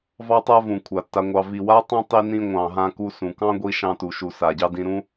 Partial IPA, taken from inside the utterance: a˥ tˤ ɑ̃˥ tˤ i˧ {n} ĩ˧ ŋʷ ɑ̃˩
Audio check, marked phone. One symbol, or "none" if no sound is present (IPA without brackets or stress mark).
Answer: n